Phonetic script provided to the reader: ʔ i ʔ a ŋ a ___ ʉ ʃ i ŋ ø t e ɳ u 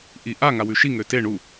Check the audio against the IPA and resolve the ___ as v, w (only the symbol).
w